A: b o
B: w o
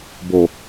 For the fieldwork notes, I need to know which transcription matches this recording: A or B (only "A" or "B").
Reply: A